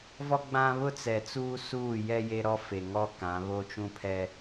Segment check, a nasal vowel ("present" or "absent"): present